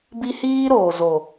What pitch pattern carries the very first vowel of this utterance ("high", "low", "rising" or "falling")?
high